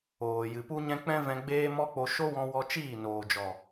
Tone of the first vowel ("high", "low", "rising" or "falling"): low